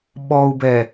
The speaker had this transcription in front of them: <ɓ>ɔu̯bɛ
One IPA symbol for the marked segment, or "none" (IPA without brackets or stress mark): ɓ